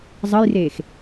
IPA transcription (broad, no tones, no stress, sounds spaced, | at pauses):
zˤ ə j r eː x